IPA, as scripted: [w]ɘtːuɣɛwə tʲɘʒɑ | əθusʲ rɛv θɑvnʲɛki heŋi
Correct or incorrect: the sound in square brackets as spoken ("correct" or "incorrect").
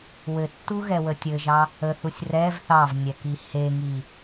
correct